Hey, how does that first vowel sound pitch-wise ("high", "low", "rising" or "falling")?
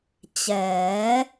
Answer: rising